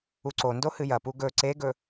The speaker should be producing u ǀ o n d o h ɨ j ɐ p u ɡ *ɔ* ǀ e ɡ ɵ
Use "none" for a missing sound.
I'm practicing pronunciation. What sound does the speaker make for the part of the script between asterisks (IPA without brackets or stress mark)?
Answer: ɵ